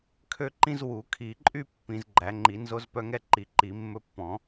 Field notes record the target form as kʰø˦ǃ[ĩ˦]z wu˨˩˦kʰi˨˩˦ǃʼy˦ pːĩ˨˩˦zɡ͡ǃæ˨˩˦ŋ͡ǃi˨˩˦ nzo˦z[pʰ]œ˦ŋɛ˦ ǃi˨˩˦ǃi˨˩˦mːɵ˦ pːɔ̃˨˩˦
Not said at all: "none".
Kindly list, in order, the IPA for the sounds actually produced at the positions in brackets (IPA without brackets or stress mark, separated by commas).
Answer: ĩ˦, p